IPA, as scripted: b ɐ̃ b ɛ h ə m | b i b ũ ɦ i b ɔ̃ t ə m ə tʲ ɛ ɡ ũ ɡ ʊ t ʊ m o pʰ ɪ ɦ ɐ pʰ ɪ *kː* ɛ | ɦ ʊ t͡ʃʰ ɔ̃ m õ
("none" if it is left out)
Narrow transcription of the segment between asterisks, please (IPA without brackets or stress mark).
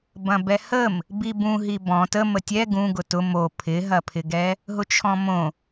ɡ